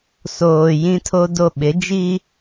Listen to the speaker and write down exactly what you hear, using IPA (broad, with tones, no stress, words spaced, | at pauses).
soː˨ jĩ˦tʰo˦do˦˨ ɓɪ˨˦d͡ʒiː˦